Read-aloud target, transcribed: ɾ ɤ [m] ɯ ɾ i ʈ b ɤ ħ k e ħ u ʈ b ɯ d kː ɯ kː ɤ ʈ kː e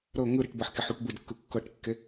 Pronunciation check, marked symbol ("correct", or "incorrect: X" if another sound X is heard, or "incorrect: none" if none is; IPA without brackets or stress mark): incorrect: ŋ